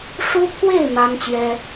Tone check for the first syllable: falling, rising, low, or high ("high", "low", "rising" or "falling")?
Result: high